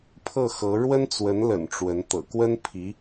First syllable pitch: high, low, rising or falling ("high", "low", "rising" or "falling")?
falling